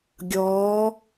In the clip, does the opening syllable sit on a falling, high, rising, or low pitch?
rising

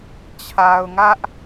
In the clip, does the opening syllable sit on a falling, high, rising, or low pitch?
low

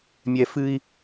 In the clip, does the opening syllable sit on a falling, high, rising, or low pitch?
high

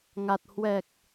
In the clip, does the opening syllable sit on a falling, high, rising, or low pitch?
low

